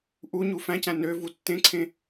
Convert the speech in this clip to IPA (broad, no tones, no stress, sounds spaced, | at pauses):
ʔ u ɲ u f æ̃ c æ̃ n ø v u tː ẽ ǀʰ ẽ